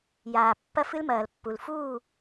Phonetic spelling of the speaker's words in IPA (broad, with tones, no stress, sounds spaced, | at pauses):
j aː˨ pː ɐ˦ f ɨ˦ l m ɐː˨ l pː u˨ l f uː˦˨